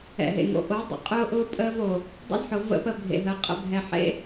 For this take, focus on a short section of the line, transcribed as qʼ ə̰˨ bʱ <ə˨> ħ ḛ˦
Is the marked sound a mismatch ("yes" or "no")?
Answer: yes